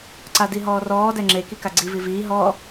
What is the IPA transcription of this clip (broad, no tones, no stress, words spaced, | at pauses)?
ǀadiɦɔːrɔː dɛŋ͡ǁe kikaɡ͡ǀi viviː ɦɔ